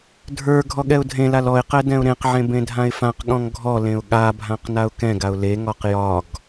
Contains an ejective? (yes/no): no